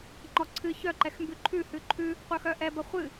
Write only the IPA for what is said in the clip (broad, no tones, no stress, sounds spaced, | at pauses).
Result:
ŋ͡ǃ ɔ ǀʰ ɨ ç œ ǃ ɛ x m b ʉ ǃʰ ʉ h ʉ ǃʰ ʉ | qʷ œ x œ ʔ ɛ b ɐ χʷ ɨ